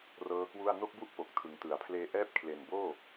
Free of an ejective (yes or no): yes